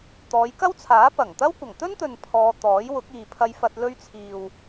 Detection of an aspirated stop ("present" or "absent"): present